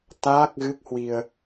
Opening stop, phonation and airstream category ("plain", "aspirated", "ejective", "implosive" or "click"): plain